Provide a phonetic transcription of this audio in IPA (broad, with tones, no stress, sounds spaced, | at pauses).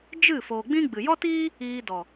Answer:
d͡ʒ ɨ˦˨ f oː˨ ɡ͡b ĩ˦ ɡ͡b ɨ˨ j ɔ˦ t iː˦ | iː˧ d ɔ˨